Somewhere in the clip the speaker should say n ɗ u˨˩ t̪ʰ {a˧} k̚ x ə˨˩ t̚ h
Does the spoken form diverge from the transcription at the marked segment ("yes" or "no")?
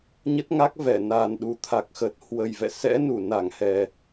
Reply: yes